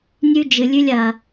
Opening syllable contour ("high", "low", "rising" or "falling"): high